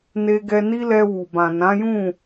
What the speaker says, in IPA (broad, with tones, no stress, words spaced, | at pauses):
ne˧ɡɛ˧ni˦lɛ˧ wu˨bã˨ nã˨˦jũ˦˨